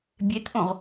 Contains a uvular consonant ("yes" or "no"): yes